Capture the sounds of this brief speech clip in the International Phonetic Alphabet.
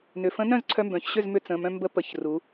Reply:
n ʏ˩˧˩ f ə̃˧˥ n œ̃˥˨ z ǀʰ œ˧ m b œ̃˩˧ ç ɕ ʏ˥˨ z m ʏ˧ t͡s ə̃˩˧˩ m œ̃˧ m b ə˧˥ p ə˩˧˩ ç r u˩˧

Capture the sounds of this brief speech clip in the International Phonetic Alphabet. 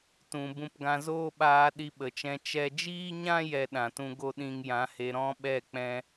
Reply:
t ũ˨ b ũ˧ p ɡ ã˧ z oː˦ ɓ aː˧ ɗ i˧ ɓ ə˨ t͡ʃ ɛ̃˧ t͡ʃ ɛ˧ d͡ʒ iː˦ ɲ ã˦ j ɛ˧ ɗ ã˨ t ũ˧ ɡ o˦ ɗ ĩ˧ ŋ j ã˨˦ h e˧ ɾ ɔ̃˦ ɓ ɛ˦˨ k͡p ɛ̃˧

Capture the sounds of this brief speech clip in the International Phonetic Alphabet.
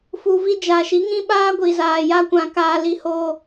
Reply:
f u˨ v i˧ d͡ʒ a˨ ʃ i˨˦ ŋ ĩ˦ ɓ aː˦ ɡʷ i˨ z aː˨ j a˧ kʷ ã˨ k aː˧ l i˧ h oː˧

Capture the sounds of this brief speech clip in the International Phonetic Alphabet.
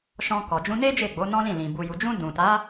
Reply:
ʃ ɔ̃˧ k ɔ˨ d͡ʒ ũ˧ n e˦ d͡ʒ e˦˨ ɡ͡b o˨˦ n ɔ̃˦ l ĩ˦˨ l ĩ˨ b u˨ j u˨ d͡ʒ ũ˧ d ũ˨ t a˨˦

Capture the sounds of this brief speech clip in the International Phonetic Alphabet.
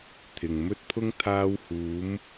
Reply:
t̪ʰ ɪ˨ ŋ m ɵ˥ t̚ pʰ ʊ˥ ŋ t̪ʰ aː˧ w h uː˨˧ m

